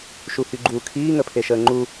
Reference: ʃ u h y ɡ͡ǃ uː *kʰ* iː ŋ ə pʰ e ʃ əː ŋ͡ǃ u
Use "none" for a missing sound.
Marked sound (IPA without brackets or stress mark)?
kʰ